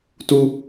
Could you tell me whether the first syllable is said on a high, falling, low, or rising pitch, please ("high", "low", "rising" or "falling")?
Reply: high